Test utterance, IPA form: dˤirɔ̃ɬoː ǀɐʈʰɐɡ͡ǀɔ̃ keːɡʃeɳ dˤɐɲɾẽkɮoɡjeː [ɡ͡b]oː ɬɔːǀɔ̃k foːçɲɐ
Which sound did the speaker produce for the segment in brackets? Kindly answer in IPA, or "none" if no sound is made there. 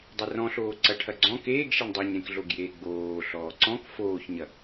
ɡ͡b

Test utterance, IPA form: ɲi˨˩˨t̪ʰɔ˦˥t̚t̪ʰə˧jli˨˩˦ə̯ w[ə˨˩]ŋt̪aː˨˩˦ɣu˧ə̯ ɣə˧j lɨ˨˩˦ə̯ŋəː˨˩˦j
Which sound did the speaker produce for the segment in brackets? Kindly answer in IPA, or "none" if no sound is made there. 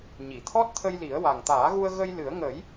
a˨˩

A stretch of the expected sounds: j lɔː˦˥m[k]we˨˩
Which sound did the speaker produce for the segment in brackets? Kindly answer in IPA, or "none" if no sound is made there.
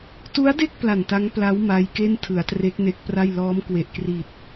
k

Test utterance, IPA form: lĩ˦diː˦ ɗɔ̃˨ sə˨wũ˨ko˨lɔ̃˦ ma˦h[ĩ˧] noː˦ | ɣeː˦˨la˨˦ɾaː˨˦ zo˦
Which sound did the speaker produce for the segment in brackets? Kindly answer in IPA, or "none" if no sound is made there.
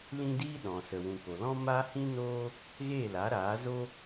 ĩ˦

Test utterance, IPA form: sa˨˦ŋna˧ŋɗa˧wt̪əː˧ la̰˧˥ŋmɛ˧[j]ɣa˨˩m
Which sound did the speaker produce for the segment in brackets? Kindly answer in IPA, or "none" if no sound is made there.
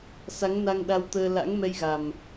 j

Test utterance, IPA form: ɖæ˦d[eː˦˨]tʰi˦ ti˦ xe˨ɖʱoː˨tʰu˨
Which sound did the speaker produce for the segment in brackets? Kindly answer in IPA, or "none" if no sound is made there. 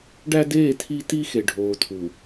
eː˦˨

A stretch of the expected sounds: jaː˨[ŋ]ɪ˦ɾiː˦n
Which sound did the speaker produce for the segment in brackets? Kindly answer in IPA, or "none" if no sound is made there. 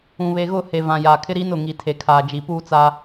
kʰ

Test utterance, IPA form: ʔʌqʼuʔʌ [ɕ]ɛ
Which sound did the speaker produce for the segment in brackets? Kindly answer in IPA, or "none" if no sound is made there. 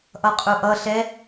ɬ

